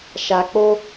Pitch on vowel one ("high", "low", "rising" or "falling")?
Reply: low